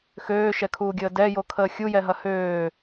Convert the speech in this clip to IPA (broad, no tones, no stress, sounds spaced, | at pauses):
x øː ʃ ɛ kʰ uː ɡʲ əː d ɛ j o kʰ əː xʲ u j ɛ ɦ ɐ h øː